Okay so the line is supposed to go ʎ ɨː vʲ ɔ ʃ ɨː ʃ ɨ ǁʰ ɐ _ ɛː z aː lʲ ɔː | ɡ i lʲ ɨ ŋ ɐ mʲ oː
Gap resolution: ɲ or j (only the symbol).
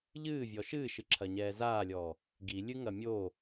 ɲ